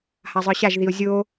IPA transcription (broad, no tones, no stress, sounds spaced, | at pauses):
h a zˤ ə˞ ɕ a ʒ ð i o̯ zʲ o